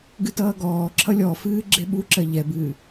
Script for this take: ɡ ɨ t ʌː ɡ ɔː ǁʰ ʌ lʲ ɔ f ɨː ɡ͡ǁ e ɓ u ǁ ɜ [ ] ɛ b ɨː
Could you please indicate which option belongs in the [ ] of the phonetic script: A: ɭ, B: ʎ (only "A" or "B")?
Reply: B